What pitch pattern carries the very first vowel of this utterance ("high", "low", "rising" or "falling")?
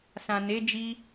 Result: low